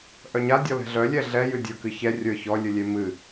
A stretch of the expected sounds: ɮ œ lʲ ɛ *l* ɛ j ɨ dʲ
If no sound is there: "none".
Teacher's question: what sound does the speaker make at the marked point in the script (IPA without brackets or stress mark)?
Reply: ɮ